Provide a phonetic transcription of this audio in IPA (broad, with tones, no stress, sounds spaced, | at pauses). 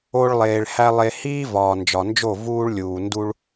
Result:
o˧ ɭ lˠ eː˨ ɭ h æ˧ lˠ e˨ h iː˧ v ɒː˨ n d͡ʒ ɒ˨ n d͡ʒ o˦˨ v uː˧ ɭ lʲ uː˨ n d u˧ ɭ